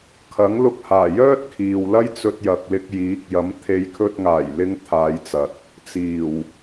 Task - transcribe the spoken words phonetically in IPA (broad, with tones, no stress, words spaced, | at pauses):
kʰɐ˨˥ŋlʊ˧k̚haː˨˩jœː˥t̚ kʰiː˨wlɐ˥jt͡sɵ˧t̚ jɐ˨k̚lɪ˧k̚ jiː˨˥k̚ jɐ˨˥mt̪ʰe˨˧jkʰɵ˧t̚ ŋaː˨˩jlɪ˨˧ŋ t̪ʰaː˨˧jt͡sɐ˨t̚ | t͡siː˨˩w